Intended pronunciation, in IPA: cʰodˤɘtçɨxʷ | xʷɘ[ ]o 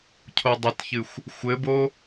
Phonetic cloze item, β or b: b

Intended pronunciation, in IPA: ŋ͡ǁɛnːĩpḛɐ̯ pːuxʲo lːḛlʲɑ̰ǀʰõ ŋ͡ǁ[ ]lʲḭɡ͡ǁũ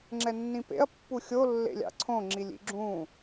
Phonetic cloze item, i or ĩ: i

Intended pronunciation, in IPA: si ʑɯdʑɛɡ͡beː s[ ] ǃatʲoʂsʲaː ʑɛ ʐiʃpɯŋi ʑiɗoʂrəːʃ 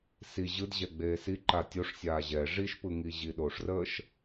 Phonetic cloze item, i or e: i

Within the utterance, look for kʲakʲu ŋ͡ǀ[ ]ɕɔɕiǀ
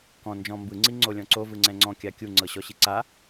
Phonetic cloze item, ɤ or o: ɤ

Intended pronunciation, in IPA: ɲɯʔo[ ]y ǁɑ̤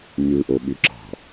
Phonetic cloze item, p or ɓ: ɓ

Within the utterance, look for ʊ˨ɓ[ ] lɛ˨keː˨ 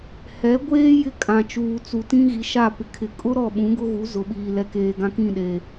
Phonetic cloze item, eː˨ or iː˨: iː˨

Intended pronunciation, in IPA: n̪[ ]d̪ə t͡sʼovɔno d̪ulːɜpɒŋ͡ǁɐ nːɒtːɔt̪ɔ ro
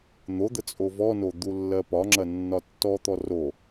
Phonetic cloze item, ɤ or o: o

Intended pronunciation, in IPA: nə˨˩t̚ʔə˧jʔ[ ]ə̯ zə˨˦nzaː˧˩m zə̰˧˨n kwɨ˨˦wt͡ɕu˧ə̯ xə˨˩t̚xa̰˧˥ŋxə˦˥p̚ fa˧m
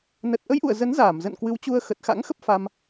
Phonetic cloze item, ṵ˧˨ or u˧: ṵ˧˨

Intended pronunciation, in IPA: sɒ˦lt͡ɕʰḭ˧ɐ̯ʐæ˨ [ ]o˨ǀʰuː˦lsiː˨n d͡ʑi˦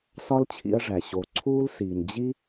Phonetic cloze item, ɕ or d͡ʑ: ɕ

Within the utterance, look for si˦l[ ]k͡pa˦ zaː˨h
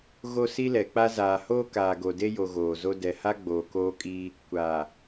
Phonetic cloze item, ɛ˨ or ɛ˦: ɛ˨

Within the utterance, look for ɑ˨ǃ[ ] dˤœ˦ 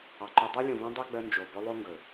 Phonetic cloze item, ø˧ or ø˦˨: ø˧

